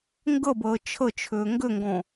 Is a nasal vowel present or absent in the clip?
present